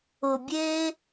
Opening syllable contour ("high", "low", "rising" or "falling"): low